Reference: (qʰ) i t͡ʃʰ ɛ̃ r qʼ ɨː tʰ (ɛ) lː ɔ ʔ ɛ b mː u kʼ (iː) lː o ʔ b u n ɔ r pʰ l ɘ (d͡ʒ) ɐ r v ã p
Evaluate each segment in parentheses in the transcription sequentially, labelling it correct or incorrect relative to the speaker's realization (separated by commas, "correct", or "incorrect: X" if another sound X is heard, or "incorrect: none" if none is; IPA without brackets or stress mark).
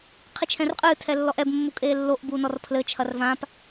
correct, correct, incorrect: eː, incorrect: t͡ʃʰ